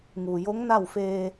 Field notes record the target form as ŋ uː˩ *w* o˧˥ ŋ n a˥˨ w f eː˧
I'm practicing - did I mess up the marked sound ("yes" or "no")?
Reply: yes